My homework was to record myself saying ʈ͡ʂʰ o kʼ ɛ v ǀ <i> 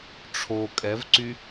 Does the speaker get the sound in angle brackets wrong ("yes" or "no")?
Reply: yes